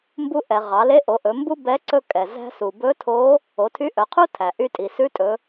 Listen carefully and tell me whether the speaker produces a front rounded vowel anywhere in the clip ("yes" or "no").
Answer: yes